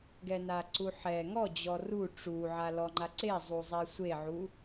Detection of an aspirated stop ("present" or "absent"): absent